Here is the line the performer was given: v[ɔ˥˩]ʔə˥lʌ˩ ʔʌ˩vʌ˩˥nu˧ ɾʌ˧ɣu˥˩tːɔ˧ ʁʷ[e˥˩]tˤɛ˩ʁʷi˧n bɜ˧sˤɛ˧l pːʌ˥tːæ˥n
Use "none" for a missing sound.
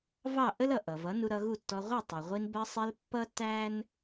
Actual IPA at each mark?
ɑ˥˩, ɛ˥˩

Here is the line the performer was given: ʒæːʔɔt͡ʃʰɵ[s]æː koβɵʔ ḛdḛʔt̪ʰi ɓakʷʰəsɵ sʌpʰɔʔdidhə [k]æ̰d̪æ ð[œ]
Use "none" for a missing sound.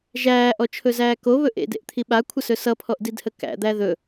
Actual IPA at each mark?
z, k, ɵ

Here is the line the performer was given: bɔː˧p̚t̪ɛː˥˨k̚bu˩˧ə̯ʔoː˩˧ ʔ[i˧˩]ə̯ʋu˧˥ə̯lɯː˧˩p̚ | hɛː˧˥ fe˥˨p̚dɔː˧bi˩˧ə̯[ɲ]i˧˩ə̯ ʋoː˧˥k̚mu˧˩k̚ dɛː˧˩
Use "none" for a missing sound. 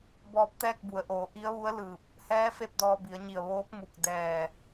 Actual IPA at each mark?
i˧˥, ɲ

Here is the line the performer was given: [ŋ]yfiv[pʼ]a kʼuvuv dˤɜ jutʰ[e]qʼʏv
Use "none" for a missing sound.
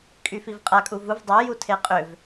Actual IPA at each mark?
kʼ, qʼ, e

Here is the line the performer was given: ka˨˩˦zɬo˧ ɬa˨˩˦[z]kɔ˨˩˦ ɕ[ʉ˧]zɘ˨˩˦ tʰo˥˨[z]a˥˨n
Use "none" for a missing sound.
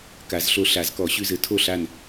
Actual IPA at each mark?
z, ʉ˧, ɬ

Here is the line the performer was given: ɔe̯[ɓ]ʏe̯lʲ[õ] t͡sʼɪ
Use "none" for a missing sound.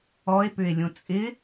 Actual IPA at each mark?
p, õ

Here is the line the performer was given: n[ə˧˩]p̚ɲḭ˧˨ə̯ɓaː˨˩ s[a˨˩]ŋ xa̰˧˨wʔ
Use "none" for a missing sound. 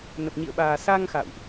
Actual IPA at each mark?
ə˨˩, a˧

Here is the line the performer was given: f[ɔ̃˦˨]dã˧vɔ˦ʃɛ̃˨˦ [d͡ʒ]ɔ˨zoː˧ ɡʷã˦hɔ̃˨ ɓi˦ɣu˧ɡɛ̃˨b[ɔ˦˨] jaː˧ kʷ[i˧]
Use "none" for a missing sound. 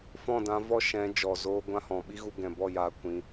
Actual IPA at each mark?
ɔ̃˦˨, d͡ʒ, ɔ˦˨, ĩ˧

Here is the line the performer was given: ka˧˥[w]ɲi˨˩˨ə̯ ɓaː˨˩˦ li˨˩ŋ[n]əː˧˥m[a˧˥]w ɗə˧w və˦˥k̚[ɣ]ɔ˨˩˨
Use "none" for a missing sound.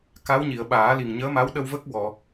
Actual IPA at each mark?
w, ɲ, a˧˥, w

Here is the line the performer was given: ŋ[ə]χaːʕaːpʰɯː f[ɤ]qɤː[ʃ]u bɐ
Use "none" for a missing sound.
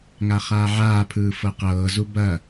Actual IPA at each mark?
a, ɤ, z

